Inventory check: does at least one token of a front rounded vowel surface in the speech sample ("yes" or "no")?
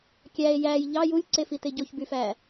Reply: yes